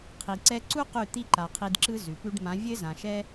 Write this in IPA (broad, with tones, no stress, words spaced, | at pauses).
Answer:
qʰi˨ǀɛ˧ǀu˦ qʉ˦˨t̪i˦ ǃa˨ qʰi˧dǁɯ˦ zʉ˨pʉ˦ɖ mã˨˦vʲɘ˦zã˨ʃɛ˦